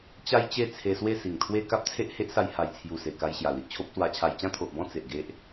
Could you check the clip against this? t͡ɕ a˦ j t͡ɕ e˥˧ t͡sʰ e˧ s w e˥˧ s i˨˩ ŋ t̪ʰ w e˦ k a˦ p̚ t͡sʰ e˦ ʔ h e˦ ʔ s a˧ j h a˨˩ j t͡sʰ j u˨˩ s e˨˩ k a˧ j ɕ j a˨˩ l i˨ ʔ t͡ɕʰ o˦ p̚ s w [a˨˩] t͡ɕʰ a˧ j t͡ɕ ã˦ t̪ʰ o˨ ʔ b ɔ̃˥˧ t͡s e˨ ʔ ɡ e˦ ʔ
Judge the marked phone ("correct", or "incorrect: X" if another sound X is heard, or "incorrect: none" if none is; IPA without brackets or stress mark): incorrect: a˧